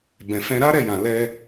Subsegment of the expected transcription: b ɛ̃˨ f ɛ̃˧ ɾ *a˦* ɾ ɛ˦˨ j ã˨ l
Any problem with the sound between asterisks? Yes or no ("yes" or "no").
no